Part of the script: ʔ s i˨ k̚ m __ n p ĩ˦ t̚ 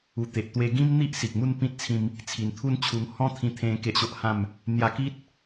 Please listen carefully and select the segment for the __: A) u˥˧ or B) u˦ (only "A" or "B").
A